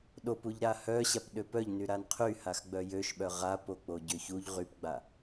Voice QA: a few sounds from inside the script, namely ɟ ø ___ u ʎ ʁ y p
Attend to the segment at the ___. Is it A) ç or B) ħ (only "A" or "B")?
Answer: A